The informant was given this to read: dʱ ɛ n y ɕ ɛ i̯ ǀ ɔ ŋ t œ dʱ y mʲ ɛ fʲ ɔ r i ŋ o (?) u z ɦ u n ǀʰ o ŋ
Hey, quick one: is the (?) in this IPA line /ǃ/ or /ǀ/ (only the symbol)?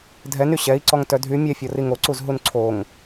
ǀ